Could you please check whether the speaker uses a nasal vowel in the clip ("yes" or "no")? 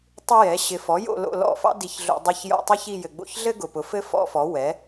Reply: no